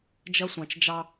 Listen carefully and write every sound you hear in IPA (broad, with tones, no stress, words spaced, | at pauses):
d͡ʒɐ˦sʷɑ̃˨t͡ʃd͡ʒɑ˦